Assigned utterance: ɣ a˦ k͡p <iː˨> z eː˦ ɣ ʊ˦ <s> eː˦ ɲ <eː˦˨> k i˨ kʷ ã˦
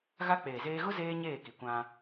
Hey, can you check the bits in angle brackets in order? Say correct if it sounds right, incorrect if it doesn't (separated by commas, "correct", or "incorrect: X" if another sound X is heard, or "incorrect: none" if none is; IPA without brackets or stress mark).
incorrect: eː˨, incorrect: z, correct